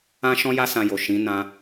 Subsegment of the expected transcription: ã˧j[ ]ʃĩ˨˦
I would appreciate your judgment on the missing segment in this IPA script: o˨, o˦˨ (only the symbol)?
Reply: o˨